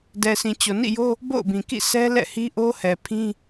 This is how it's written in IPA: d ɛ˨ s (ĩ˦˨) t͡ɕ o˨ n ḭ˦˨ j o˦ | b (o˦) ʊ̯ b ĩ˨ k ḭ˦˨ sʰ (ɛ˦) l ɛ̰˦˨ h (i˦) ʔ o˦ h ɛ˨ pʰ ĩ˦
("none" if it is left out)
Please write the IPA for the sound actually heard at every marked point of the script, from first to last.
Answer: ĩ˨, o̰˦˨, ɛ˦, i˦

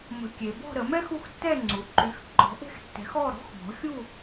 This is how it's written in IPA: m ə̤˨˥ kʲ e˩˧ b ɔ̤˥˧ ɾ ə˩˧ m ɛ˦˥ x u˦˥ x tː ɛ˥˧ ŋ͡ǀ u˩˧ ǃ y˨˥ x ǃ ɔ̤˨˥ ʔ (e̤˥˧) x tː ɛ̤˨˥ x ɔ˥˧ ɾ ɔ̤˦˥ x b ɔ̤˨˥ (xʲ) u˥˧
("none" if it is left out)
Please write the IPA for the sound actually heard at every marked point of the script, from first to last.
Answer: e̤˥˧, xʲ

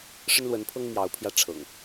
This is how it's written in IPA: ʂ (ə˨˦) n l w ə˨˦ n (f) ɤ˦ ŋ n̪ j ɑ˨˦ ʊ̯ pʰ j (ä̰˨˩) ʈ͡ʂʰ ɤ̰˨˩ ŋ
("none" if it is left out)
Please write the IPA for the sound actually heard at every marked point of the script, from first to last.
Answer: ə˦, pʰ, ä˧

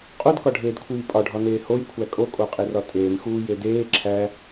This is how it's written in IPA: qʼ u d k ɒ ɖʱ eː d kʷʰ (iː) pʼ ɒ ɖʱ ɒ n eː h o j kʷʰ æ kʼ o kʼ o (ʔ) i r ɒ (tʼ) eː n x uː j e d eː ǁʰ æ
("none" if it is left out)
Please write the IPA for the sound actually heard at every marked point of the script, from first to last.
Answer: iː, qʼ, tʼ

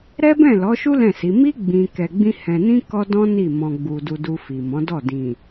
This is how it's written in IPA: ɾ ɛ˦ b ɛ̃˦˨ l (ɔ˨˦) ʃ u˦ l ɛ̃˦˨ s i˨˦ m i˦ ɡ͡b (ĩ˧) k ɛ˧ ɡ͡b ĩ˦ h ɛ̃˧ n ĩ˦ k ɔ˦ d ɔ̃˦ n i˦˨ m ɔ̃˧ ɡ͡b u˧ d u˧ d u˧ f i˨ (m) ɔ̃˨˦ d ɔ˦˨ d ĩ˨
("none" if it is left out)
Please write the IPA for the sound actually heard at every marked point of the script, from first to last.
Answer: ɔ˨˦, ĩ˧, m

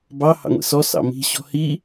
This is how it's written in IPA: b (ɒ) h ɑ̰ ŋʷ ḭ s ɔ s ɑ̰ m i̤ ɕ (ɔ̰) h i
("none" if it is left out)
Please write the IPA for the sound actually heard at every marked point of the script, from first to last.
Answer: ɑ, ɔ̤

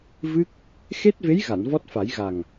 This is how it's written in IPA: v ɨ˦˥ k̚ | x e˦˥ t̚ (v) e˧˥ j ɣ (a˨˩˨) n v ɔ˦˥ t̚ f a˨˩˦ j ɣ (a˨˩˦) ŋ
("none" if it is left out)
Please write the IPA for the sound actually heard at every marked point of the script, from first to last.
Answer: v, a˨˩˨, a˨˩

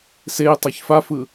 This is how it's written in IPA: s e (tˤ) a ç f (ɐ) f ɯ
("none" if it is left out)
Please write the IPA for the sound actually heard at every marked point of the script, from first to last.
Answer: tˤ, a

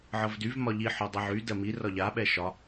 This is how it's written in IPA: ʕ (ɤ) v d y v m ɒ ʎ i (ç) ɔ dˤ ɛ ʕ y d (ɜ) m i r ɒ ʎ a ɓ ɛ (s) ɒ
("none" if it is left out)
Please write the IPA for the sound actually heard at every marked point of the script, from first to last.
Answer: ɤ, ħ, ɜ, ʃ

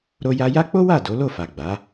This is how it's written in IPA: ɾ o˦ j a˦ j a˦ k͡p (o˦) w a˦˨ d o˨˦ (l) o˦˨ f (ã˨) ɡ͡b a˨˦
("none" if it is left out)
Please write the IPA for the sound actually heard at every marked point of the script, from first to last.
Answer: o˦, l, a˨

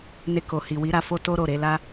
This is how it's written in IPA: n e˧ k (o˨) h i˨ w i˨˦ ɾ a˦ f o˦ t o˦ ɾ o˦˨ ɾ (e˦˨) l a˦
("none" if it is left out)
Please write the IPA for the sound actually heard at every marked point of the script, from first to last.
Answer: o˨, e˨˦

